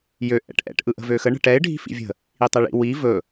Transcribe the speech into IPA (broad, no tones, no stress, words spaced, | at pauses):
jø ʔɛ̰ʈʔɛ̰ʈ ʔɯʔə̤vøxə ɳə̤ʈɛɪ̯ ɖʱi̤fḭvʲə̤ | itˤɛɭḭ wi vɵ